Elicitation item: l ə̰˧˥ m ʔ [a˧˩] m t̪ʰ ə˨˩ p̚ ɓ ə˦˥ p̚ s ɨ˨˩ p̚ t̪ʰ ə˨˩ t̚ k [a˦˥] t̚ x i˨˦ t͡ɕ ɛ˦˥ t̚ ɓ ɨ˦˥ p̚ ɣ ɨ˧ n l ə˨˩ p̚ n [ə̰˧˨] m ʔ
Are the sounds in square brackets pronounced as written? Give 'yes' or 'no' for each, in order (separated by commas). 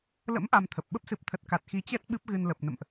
no, no, yes